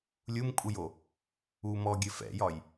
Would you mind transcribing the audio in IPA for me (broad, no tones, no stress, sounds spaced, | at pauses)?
lʲ u m kʼ u j o | u m ɔ ɡʲ ɘ f ɛ̰ j ɒ j